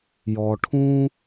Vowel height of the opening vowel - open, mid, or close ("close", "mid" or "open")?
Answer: mid